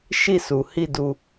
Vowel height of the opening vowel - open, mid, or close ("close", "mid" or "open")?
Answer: close